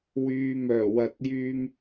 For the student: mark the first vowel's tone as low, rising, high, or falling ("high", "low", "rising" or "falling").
low